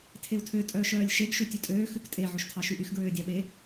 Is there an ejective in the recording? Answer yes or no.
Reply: yes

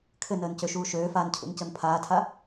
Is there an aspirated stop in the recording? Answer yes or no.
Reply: yes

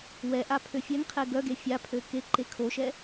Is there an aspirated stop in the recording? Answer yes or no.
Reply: yes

